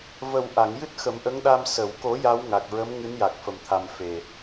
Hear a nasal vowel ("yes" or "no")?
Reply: no